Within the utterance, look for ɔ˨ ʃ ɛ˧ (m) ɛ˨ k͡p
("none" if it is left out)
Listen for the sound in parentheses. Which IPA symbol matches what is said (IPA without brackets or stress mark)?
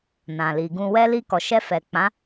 f